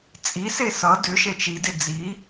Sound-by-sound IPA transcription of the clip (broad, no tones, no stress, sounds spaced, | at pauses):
t͡sʼ i s e s ʌ d ʏ ʃ e t͡ʃ i d e d͡z i